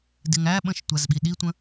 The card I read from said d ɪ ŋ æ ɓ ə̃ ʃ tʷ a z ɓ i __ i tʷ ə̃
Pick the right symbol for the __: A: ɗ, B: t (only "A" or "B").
A